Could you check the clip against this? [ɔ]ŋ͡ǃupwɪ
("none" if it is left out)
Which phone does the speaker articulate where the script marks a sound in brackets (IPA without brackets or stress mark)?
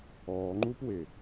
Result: ɔː